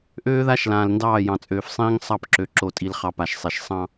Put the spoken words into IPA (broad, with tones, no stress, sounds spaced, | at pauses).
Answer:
ʔ øː˦ ð a˦ ʃ l ãː˨ l n d ɑː˦˨ j ɑ̃˨ t͡sʼ øː˨ f sˤ ĩː˦ ŋ sˤ ɑ˦˨ p ǁ ø˨ ǁ o˨ tʼ i˨ l χ ɑ˨ p a˨ ʃ sˤ e˨ ʃ sˤ ɑ̃˦